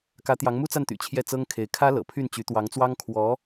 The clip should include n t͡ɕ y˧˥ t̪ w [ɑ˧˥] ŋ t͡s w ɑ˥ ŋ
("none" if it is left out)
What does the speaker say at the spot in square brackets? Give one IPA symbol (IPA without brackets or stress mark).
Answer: ɑ˧˥